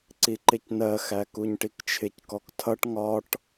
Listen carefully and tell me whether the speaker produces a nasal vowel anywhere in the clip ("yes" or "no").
no